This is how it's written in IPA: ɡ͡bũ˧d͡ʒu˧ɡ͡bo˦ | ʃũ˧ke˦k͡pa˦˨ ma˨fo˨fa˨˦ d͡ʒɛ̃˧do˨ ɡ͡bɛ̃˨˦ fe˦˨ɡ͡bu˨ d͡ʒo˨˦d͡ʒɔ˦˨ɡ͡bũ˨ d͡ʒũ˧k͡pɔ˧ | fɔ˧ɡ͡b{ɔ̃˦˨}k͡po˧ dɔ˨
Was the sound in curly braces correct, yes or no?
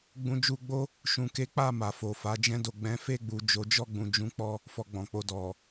no